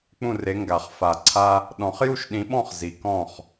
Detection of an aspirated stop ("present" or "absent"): present